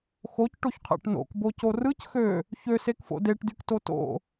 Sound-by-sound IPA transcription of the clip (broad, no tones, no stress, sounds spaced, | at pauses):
x o c ʈ o ç qʰ æ̰ ʈ n o̰ k b o c o r ɯ c x ø | ç ø s e k f o̰ d e ʈ d y k t o t o̰